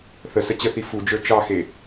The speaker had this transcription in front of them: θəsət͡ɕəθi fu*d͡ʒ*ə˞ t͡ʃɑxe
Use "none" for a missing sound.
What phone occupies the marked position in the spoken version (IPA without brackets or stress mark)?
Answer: d͡ʒ